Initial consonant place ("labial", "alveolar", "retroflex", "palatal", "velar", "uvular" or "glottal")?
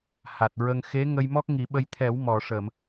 glottal